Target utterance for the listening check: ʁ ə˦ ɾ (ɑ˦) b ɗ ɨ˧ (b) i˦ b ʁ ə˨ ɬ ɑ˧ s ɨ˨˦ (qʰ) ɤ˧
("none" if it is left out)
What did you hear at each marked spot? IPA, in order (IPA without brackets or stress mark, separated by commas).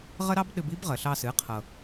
ɑ˦, b, qʰ